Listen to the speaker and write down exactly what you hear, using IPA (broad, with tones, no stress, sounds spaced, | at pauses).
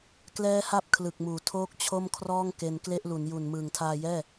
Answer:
k l ɛː˦˥ h a˦˥ p̚ kʰ l ɯ˨˩ k̚ m uː˨˩ tʰ oː˥˩ k̚ t͡ɕʰ o˥˩ m kʰ r ɔː˥˩ ŋ k e˧ n k l e˥˩ ʔ l u˩˦ n j u˨˩ n m ɯː˨˩ ŋ tʰ aː˧ j ɛː˥˩